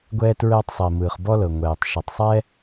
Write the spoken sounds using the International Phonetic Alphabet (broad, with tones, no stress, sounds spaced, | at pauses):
ɡʷ ɛː˥ t ɹ ɛː˥ tˤ sˤ i˩ m ɯː˩ χ b ɔ˥ l ɤ˩ ŋʷ ɛː˩ tˤ ʃ o˩ tˤ sˤ ɛ˥